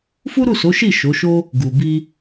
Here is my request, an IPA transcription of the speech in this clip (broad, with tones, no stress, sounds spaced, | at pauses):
f u˦ ɾ u˦˨ s o˨˦ ʃ i˦˨ ʃ o˨˦ ʃ o˦ | ɡ u˨ b i˧